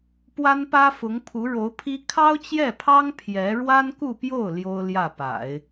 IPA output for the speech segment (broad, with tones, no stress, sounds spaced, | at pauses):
p w a˥ n p ä˥ f ʊ˧˥ ŋ pʰ u˧˥ ɻ o˧˥ ʊ̯ pʰ i˥ kʰ ɑ˥ ʊ̯ t͡ɕ j ɛ˥˩ pʰ ɑ˥ ŋ pʰ j ɛ˧˥ ɻ w a˥ n k u˥˧ p j o˥˩ ʊ̯ l j o˥ ʊ̯ l j ä˥˩ p a̰˨˩˦ ɪ̯